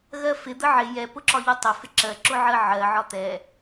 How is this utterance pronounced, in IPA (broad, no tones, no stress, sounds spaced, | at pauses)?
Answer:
ɣ ɜ f ɪ d̪ ə ʕ ɪ j ɛ p ʊ ǁ ɒ ʎ u tˤ ɪ f ɪ ǁ ɜ ǁ ʊ ʕ ɜ ʕ ɜ ʕ ɒ t̪ ɛ